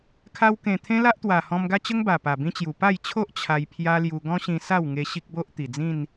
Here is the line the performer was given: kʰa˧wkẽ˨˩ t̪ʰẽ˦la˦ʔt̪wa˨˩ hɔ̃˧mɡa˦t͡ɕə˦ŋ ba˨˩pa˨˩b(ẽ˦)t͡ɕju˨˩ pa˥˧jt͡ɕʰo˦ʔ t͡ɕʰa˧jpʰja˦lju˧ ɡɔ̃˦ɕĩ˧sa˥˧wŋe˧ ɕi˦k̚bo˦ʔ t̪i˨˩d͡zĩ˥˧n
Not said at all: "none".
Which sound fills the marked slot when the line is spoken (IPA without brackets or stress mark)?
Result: ĩ˦